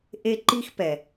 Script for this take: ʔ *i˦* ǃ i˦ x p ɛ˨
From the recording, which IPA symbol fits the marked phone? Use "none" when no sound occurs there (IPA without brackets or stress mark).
e˦